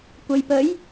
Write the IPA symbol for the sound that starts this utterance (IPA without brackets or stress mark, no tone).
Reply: kʷ